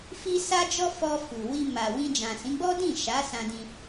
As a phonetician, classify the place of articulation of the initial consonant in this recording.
labial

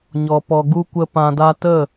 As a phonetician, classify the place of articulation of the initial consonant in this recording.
palatal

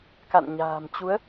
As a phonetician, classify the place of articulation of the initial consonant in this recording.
velar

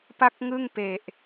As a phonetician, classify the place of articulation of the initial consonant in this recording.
labial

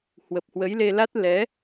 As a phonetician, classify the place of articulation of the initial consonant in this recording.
glottal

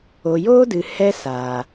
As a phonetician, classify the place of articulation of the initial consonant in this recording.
palatal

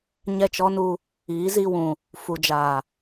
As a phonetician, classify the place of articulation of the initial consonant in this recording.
palatal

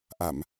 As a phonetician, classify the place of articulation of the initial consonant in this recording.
glottal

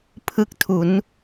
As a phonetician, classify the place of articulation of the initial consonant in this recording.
labial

